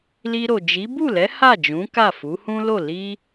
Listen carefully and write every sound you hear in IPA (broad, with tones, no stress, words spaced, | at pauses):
li˧ɾo˨d͡ʒi˨˦ bu˦˨lɛ˨˦ ha˦˨d͡ʒũ˨˦ ka˦˨fu˨˦ hũ˦lo˦˨ li˧